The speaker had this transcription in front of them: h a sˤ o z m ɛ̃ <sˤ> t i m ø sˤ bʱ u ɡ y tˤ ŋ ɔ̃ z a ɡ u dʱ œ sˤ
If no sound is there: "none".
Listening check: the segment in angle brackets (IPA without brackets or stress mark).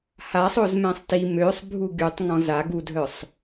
sˤ